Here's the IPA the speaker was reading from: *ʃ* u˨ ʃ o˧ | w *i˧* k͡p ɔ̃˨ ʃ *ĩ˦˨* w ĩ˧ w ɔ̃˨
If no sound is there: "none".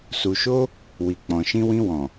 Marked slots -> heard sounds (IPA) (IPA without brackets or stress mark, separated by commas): s, i˨, ĩ˧